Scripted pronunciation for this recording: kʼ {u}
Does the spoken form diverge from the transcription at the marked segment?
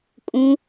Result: yes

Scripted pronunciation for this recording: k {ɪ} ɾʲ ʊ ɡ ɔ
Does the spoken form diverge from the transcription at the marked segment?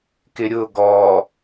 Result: no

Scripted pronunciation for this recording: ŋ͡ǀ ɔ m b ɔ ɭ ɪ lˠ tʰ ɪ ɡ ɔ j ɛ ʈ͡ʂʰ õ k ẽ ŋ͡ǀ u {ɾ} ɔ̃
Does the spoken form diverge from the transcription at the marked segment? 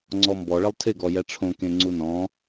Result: yes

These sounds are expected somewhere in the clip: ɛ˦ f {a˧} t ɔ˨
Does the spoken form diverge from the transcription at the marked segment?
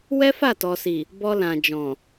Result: yes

